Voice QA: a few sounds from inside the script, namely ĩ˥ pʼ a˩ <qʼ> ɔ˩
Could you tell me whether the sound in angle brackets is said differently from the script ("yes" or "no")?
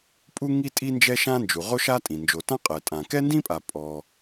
yes